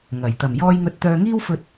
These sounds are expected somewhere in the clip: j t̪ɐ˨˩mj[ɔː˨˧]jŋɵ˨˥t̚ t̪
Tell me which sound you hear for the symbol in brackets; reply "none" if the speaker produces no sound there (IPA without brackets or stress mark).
ɔː˧